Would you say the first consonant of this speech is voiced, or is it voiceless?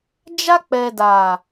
voiced